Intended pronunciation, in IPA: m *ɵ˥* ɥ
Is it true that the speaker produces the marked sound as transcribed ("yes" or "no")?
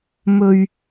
yes